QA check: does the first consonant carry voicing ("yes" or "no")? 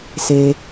no